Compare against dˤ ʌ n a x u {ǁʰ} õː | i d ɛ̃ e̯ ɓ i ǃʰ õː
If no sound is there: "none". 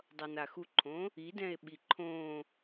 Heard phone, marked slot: ǃʰ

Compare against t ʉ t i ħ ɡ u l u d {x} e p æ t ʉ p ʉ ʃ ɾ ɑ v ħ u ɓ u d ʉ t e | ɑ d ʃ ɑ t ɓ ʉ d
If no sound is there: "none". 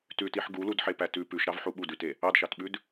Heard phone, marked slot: ħ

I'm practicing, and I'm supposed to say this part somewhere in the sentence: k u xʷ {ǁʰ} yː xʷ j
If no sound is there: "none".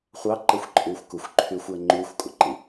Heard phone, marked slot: ǃʰ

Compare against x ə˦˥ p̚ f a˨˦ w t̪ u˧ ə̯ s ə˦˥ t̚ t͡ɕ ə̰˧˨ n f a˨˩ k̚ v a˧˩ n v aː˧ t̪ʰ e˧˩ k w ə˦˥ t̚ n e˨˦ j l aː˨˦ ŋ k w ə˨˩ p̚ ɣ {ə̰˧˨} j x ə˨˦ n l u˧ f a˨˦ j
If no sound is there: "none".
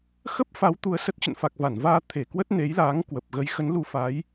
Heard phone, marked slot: ə˨˦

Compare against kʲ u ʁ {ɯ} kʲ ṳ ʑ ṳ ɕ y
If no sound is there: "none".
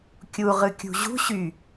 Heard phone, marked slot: ɯ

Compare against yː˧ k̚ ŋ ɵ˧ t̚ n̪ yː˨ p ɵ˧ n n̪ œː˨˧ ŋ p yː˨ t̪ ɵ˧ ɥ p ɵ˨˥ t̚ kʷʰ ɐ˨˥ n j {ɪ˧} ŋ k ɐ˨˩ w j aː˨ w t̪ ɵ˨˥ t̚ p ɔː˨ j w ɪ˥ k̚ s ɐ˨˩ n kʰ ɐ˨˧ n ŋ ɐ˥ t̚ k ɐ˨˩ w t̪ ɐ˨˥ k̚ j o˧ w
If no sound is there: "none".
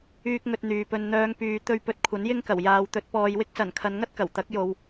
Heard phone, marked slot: ɪ˥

